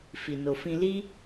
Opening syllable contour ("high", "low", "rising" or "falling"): low